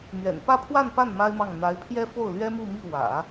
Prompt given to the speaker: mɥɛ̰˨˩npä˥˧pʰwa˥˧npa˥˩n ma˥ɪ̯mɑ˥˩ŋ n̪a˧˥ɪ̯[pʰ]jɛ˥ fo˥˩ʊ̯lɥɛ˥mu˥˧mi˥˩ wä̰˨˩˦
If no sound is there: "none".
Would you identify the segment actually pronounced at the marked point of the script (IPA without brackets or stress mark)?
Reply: pʰ